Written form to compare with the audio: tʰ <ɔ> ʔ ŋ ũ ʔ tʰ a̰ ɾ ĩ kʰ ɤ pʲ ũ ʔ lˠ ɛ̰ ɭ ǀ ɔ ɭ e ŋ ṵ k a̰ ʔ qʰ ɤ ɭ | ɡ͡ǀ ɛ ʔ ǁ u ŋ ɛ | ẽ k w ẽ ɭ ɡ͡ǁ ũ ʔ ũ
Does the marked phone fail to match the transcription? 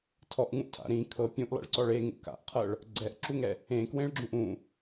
no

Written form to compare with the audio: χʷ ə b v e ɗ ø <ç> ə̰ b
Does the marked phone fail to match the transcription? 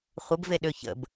no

